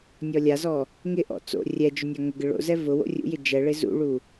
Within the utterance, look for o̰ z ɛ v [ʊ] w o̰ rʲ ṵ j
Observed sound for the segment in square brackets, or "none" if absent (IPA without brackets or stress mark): ʊ